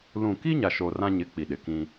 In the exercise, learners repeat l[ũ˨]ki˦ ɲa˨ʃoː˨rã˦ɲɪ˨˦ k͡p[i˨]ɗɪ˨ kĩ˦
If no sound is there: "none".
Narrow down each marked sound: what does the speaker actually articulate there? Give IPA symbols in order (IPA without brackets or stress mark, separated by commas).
ũ˨, i˨